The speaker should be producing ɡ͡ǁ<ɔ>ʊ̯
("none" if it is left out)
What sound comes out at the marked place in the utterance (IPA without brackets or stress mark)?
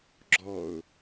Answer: ɔ